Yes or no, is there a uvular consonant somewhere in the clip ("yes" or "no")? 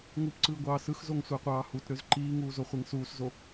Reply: yes